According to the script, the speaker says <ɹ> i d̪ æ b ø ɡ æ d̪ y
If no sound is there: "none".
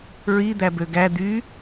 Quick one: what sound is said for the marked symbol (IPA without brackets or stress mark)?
ɹ